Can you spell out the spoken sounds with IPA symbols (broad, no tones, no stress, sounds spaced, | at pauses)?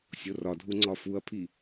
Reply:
sʲ o r ɒ dʱ u ŋ͡ǀ ɒ f u ɐ̯ pʰ i